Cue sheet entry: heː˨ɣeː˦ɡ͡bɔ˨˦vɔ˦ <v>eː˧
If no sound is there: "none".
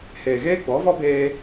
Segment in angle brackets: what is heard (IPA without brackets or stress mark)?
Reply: b